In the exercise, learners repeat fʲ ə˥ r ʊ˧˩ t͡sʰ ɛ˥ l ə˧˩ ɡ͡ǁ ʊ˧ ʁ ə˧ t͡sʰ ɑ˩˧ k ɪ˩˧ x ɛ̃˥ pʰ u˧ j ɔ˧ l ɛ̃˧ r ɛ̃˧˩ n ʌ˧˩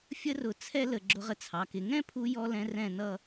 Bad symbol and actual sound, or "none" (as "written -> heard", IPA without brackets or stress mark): x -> ŋ